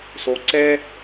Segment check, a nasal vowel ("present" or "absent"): absent